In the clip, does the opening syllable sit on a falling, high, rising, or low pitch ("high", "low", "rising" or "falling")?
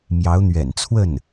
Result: rising